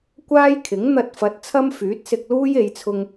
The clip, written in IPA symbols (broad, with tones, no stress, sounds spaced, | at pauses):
kʷ aː˥ j kʰ ɪ˨˥ ŋ n̪ ɐ˧ t̚ f ɐ˨˥ t̚ t͡sʰ ɐ˥ m f yː˨˥ t̚ s ɪ˧ k̚ l uː˥ j e˨˧ j t͡sʰ ʊ˧ ŋ